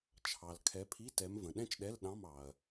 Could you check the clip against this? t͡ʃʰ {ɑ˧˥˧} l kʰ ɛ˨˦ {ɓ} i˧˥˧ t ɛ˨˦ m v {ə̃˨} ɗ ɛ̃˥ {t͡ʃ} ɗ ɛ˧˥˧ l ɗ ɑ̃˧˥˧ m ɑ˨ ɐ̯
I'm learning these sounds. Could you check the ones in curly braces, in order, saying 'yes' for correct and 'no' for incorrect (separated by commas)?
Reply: no, no, yes, yes